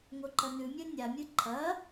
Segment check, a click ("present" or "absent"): present